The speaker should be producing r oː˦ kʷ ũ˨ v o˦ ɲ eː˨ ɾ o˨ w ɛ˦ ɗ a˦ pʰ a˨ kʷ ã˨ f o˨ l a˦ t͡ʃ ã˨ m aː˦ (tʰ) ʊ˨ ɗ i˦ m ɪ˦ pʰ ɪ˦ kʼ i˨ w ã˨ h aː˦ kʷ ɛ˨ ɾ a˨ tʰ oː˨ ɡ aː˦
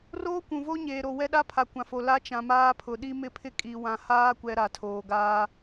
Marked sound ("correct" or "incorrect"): incorrect